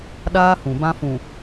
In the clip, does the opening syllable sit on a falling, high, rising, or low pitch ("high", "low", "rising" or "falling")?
high